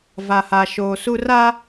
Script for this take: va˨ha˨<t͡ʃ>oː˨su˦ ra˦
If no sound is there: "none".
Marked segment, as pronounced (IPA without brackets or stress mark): ʃ